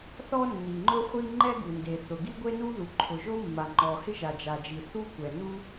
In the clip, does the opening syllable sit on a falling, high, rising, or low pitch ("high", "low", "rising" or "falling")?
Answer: high